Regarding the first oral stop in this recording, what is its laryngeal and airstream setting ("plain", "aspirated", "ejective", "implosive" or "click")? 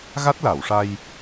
plain